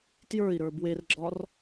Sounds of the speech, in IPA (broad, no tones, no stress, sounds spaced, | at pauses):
t j ə˞ i̯ ɾ ə˞ b w e r ɡ͡ǁ ɒ r